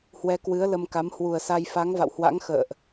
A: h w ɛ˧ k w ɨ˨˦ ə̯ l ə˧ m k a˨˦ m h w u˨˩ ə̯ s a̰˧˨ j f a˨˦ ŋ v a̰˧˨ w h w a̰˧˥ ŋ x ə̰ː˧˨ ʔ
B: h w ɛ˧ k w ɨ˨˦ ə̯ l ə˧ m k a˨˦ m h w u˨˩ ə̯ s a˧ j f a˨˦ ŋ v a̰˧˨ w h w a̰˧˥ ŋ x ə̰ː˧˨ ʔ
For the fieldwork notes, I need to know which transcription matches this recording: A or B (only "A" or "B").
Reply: B